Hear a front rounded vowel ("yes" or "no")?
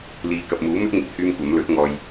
yes